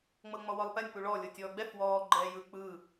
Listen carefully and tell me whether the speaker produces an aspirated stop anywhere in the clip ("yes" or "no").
no